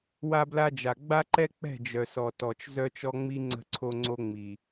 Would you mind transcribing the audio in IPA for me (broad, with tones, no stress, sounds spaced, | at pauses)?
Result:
w a˦ b l a˦ d͡ʒ a˨ ɡ͡b a˦ ǃ ɛ˦ k͡p ɛ̤˦˨ d͡ʒ œ˨ s ɔ˨ t ɔ˨ t͡ʃ z œ˦ t͡ʃ ɔ˦ ŋ͡m i˦ ŋ͡ǀ ə̤˦ ǀʰ o˦ ŋ͡ǀ o˦ ŋ͡m i˨